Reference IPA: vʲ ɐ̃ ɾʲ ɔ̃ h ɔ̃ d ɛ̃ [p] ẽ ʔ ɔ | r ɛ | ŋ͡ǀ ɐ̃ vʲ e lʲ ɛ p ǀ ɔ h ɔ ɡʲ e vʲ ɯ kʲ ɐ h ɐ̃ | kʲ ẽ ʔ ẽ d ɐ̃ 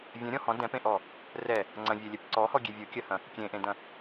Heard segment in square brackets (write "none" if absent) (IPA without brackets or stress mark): p